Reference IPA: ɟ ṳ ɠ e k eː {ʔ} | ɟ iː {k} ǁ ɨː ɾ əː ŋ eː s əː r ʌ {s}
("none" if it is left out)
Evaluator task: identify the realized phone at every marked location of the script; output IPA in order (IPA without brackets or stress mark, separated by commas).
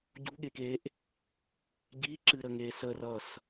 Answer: ʔ, none, s